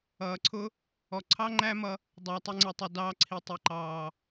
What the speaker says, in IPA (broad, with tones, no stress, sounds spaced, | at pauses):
ʌː˨ ǀʰ ʊ˦ | ɔ˨ ǀʰ ɑ˦ ŋ͡ǃ æ˦ m ʌ˧ | dˤ ʌː˨ tˤ ɪ˧ ŋ͡ǀ ə˨ tˤ ʊ˨ d ɑː˧ ǀʰ i˨ tˤ i˨ ǃ ɑː˨